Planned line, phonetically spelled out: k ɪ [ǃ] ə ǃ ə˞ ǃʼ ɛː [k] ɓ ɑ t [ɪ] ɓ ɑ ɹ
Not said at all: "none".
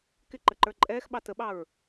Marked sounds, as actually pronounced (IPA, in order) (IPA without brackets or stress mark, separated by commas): ǃ, x, ə